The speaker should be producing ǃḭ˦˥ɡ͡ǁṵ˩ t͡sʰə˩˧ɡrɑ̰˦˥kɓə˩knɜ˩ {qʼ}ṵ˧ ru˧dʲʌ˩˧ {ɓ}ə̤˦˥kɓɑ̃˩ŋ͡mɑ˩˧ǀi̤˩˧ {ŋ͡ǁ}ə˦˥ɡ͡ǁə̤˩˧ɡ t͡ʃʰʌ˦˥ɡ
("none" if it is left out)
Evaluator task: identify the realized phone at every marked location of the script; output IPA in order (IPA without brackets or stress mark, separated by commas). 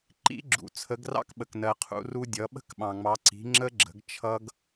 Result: qʰ, ɓ, ŋ͡ǁ